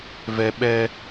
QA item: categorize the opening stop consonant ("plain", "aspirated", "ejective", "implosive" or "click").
implosive